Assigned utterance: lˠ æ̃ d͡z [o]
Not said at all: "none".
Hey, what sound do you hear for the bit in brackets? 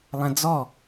ɔ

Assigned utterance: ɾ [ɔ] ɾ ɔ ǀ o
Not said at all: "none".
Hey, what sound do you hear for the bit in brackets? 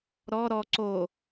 ɔ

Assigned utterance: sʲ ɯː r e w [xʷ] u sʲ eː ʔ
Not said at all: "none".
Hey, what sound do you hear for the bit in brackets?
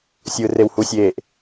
h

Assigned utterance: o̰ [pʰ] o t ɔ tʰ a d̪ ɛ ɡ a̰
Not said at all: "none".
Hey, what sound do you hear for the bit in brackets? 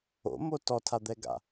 m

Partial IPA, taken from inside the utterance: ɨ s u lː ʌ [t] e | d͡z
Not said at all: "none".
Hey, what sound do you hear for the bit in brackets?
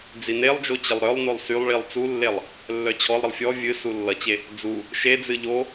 t͡ɕ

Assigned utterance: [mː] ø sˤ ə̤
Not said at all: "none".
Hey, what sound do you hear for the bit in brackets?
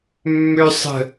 mː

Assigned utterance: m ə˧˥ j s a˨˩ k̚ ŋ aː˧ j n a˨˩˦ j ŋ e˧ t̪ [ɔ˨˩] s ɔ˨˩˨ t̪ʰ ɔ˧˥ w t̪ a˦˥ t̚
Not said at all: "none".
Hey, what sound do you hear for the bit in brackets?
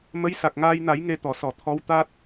ɔ˨˩˨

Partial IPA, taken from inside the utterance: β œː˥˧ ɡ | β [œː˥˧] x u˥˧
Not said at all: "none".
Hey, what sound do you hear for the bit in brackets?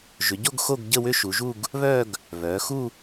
œː˩˧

